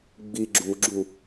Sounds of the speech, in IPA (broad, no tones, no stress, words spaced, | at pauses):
ɡ͡bi ɡ͡ǁuɡ͡ǁu